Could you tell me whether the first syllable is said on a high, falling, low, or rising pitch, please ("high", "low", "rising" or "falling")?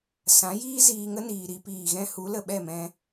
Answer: rising